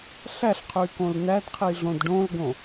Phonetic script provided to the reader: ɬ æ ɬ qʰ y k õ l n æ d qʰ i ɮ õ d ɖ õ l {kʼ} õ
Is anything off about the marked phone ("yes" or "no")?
yes